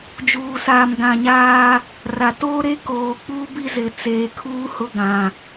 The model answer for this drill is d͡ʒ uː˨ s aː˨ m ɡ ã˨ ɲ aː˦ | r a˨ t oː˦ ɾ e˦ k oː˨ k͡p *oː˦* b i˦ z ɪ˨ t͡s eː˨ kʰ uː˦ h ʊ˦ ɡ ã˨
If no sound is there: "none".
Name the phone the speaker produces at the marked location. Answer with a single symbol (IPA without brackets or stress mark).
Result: uː˦